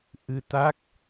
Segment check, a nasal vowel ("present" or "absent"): absent